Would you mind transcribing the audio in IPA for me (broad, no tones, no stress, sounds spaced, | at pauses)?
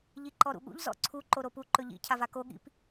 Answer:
ʎ i ǃ ɔ ɾ ṵ ɠ ṵ ʎ z ɔ̰ ǀʰ u ǃ o ɾ o p u ǃ ɵ ʎ ḭ cʰ a v a k o ɠ ḭ p